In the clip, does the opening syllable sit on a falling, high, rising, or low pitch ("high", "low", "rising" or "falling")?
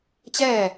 falling